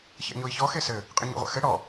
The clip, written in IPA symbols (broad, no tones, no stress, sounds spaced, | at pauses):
ç ɛ̰ ɲ o i̯ ç ɔ x e s ɘ | qʼ ɨ ɲ o̰ ʁʷ a̰ x ɘ ɽ ɔ